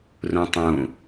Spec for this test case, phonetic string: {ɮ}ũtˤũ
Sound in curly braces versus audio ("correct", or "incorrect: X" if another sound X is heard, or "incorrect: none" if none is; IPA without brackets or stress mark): incorrect: r